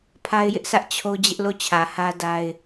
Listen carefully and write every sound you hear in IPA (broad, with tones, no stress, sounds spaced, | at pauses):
pʰ a˦ ɪ̯ j ɪ˦ ʔ s ä˦ ʔ t͡ɕʰ o˦ d͡ʑ ɪ˦ ʔ l o˦˨ t͡ɕʰ ä˨ h ä˦ d a˦ ɪ̯